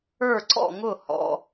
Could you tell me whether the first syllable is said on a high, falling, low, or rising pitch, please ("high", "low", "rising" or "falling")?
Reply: falling